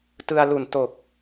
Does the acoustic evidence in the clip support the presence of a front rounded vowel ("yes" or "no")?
no